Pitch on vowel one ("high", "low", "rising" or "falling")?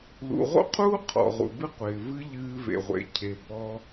low